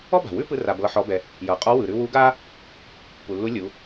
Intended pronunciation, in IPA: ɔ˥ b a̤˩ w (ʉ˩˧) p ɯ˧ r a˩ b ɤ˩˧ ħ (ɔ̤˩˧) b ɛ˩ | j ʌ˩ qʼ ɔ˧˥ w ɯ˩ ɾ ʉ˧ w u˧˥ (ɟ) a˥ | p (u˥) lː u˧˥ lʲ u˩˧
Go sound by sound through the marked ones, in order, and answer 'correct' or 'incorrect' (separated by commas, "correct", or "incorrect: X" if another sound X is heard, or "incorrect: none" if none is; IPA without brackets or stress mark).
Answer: incorrect: ʉ˥, incorrect: ɔ˩˧, incorrect: ɡ, incorrect: u˩